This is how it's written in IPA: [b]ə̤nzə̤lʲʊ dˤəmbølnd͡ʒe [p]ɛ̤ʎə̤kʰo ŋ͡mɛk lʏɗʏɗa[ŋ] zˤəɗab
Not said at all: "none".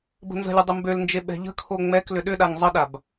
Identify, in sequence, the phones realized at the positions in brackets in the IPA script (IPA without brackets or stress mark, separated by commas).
b, ɓ, ŋ